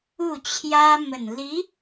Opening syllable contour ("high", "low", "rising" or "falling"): falling